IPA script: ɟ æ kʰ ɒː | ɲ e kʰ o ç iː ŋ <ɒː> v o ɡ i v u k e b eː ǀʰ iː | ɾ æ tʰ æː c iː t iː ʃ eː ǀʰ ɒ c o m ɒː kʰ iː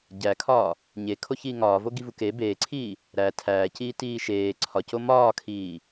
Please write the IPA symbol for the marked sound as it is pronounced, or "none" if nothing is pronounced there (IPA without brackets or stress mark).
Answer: ɒː